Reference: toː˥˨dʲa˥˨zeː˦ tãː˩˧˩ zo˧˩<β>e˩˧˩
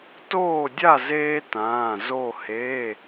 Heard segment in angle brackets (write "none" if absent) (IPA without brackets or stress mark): h